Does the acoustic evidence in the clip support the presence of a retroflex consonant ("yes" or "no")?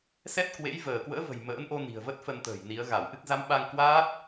no